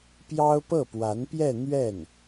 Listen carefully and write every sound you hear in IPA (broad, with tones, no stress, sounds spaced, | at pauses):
p j ɑ˥ ʊ̯ p ɤ˥˩ p w a˧˥ n p j ɛ˥˧ n̪ ɥ ɛ˥˩ n